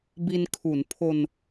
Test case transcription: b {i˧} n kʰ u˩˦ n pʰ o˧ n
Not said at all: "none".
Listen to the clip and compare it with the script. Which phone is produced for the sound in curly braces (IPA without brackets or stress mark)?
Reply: i˧